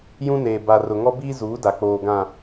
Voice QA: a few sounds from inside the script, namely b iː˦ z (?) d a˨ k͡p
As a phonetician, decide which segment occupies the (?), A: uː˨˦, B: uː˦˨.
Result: A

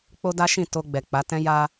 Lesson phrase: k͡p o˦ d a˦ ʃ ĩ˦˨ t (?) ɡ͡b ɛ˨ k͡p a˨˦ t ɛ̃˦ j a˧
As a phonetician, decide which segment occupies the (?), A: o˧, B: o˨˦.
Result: A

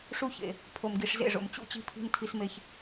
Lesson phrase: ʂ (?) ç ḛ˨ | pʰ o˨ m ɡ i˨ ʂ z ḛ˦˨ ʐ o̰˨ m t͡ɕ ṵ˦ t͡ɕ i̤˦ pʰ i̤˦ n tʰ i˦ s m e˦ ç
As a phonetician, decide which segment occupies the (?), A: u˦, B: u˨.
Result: A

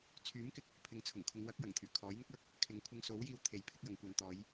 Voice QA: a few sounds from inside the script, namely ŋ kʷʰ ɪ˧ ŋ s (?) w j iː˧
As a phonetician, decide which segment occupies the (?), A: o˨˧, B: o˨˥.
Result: B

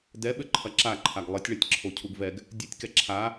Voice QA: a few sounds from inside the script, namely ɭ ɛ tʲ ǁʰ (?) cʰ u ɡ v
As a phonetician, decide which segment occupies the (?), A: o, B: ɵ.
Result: A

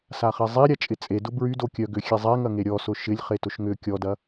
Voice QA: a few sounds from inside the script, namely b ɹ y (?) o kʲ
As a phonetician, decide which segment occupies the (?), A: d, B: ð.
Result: A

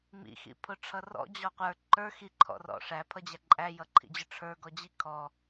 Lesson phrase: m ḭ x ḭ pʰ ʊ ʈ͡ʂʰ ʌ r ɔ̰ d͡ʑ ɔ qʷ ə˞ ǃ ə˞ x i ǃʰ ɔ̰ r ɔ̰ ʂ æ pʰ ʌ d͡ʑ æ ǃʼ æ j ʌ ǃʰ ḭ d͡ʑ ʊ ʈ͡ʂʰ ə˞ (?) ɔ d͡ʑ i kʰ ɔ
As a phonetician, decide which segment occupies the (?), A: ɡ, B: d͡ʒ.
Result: A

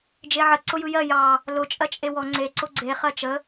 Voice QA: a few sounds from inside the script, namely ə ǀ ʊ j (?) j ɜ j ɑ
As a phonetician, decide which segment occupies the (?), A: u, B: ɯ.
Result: B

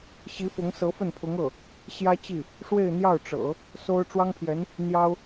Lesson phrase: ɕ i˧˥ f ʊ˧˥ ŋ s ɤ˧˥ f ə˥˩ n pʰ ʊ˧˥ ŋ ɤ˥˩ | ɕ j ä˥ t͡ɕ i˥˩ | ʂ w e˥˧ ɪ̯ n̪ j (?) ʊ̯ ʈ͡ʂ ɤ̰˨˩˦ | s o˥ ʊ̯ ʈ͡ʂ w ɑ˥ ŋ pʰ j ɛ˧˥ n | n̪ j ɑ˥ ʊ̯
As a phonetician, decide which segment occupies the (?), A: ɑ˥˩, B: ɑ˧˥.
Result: A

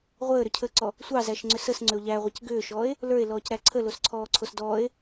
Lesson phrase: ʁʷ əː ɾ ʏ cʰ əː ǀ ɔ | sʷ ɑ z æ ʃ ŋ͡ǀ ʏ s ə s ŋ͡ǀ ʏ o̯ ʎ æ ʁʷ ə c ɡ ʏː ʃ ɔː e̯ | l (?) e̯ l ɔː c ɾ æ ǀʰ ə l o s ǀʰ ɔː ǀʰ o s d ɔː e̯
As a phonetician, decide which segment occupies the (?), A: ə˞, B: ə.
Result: A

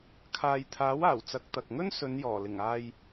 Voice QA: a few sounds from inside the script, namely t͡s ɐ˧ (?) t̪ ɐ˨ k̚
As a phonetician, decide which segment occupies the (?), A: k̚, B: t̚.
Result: A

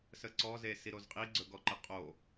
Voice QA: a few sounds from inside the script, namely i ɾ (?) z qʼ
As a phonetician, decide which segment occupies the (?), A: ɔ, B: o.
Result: B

